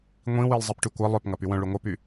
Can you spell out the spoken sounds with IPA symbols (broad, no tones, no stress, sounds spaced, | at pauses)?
ŋʷ ĩ w i lˠ zˤ i p ʈ y kʷ ɐ lˠ œ p ŋ ɐ p y w œ̃ ɭ y ŋʷ ɐ p y